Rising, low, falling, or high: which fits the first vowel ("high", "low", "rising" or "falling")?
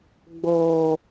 low